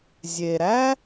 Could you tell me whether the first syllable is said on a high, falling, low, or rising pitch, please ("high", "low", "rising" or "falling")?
low